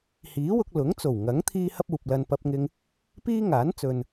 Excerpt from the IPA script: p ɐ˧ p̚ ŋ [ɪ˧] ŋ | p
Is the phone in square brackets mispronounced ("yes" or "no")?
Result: no